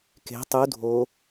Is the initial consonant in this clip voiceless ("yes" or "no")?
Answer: yes